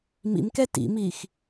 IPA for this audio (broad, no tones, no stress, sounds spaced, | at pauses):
m ḭ m k ɛ t ḭ m iː x